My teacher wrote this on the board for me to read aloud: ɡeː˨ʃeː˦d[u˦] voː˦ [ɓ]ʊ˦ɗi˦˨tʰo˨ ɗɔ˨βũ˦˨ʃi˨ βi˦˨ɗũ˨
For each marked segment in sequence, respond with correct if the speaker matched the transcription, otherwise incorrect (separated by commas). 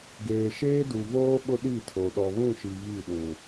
incorrect, correct